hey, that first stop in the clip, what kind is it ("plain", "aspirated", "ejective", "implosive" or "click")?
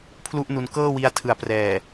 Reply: aspirated